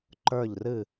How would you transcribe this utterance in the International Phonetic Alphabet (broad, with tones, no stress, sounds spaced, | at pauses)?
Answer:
ǃ ə˞˦˨ ʎ r ɨ˦˨